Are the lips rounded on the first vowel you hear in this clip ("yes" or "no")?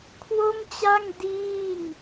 yes